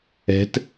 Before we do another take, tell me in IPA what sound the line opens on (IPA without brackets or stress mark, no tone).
ɛ̤